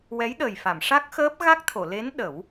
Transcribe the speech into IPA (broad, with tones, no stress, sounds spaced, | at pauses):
w ɛ˧˥ j ɗ əː˨˩ j f a˨˩˨ m ʂ a˦˥ k̚ x əː˦˥ p̚ ɣ a˦˥ k̚ t̪ʰ o˨˩˨ l e˧˥ n ɗ ə˨˩˦ w